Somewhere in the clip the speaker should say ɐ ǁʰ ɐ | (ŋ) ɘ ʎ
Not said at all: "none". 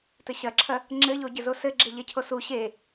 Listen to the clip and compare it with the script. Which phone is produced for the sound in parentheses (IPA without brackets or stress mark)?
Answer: ŋ͡ǁ